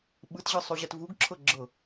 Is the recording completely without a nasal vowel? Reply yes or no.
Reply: yes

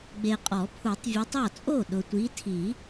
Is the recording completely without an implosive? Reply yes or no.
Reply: no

